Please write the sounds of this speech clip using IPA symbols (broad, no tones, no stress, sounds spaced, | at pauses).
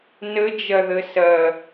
n ə d͡ʒ ɐ ð ə s ɐ